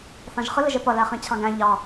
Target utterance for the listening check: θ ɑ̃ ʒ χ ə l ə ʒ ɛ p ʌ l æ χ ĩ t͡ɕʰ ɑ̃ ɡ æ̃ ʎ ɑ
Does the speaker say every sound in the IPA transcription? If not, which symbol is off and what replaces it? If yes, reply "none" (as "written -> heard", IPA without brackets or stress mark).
none